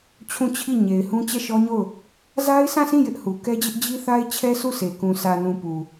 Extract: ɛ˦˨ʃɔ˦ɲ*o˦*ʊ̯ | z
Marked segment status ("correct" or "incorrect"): incorrect